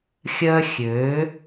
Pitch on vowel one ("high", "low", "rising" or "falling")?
high